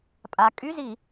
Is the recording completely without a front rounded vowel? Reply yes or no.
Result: no